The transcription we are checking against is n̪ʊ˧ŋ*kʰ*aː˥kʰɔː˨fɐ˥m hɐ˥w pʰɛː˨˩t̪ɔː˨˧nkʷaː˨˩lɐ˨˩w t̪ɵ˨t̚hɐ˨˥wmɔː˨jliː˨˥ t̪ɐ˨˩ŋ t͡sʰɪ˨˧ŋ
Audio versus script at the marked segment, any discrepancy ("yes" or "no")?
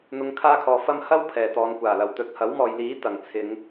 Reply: no